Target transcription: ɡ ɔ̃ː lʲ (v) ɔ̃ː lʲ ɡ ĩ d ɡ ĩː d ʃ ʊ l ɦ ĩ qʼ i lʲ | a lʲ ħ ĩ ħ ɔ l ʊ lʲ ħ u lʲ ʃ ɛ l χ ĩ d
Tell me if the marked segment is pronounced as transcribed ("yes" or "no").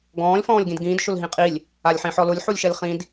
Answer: no